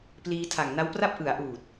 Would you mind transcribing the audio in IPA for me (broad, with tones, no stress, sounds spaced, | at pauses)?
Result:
p l iː˧ tʰ a˨˩ ŋ n a˦˥ w p r a˥˩ p̚ ʔ ɯ˩˦ a̯ ʔ uː˨˩ t̚